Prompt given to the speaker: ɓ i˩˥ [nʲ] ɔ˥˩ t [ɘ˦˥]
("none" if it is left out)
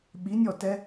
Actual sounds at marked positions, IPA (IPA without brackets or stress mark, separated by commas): nʲ, ɛ˦˥